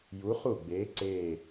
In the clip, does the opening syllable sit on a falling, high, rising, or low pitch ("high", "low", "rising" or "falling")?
rising